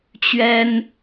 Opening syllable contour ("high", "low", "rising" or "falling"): high